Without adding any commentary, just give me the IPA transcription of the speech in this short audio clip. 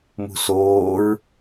m ṳ s oː ɹ

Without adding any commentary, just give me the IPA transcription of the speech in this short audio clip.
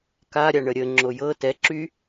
k a ɾʲ a ɳ ə ɾʲ ə ŋ͡ǁ o j ɤ t ɛ ǁ y

